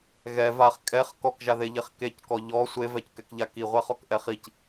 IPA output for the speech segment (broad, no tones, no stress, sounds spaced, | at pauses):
ɣ ɛ v a χ kʼ ɛ χ k ɔ k ʒ a ð e ʎ e χ k e c k ɔ ʎ ɔ sʷ e v ɛ c k ɛ k ʎ a k i ʁʷ ɛ χ ɔ k ʔ ɛ χ i c